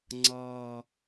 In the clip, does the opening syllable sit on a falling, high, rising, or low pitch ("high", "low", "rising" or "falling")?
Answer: low